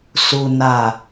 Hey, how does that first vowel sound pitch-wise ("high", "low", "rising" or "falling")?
low